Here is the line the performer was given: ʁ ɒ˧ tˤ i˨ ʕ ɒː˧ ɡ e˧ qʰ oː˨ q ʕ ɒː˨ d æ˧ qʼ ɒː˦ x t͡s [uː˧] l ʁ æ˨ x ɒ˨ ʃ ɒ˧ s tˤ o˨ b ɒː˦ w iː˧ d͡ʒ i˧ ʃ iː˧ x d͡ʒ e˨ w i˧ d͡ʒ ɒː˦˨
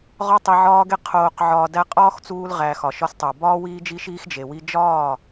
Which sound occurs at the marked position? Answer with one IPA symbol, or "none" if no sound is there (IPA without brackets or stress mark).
uː˧